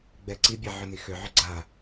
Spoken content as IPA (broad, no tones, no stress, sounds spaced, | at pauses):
ɡ͡b ɛ ǀ i bʲ ɛ ʕ ʏ n i x ʏ ʕ ʏ ɡ͡ǀ a